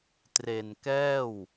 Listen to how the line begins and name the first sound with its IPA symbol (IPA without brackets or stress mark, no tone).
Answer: t